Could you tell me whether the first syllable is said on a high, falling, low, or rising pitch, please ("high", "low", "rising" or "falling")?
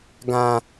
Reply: low